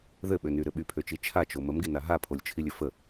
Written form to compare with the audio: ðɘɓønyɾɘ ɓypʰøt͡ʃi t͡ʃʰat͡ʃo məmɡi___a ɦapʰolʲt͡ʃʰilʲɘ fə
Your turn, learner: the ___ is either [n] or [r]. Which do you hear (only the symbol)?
n